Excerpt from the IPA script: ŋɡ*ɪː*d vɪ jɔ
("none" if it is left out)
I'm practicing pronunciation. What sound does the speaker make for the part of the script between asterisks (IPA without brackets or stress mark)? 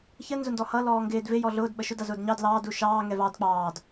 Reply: ɪː